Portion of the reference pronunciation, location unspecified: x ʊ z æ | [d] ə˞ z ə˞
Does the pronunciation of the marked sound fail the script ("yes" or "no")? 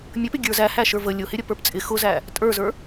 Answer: yes